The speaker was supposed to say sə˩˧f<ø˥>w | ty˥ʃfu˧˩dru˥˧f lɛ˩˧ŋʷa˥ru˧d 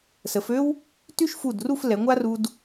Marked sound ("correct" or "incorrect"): correct